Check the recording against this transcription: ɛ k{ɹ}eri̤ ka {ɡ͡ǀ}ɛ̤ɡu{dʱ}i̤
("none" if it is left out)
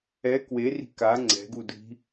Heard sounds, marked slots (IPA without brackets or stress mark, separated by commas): w, ŋ͡ǀ, dʱ